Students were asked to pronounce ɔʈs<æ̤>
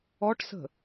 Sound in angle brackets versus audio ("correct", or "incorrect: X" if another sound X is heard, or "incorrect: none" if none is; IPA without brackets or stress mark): incorrect: ə̤